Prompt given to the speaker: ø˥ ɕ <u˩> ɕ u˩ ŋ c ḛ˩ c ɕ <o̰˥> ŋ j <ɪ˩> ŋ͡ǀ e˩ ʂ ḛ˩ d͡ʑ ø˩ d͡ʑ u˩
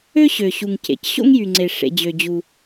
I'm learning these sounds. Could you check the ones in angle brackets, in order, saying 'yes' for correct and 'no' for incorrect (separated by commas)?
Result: no, yes, no